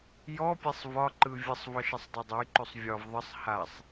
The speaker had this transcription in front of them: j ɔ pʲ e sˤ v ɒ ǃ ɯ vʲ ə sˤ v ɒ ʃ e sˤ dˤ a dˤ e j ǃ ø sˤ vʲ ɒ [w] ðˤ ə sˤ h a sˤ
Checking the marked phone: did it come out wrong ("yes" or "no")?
yes